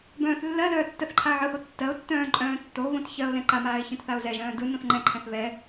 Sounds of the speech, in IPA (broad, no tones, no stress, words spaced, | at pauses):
bœ̃ːθlːɜlœː tːɜθǃʰaə̯ʕɯho tːɜʊ̯tːœ̃ː ǃʼœ̃ːtːoβõt çɜʊ̯ lɛ̃ǃamaːɪ̯ çœ̃tθaʊ̯zɛʒœ̃ː dɯ nõθŋ͡ǃɛ̃ǃʰɛ̃θ βɛ